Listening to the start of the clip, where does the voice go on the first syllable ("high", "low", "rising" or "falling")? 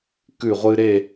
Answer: falling